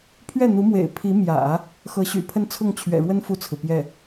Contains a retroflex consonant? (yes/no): yes